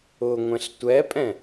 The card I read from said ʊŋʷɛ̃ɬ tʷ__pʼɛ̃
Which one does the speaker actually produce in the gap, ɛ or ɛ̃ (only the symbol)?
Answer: ɛ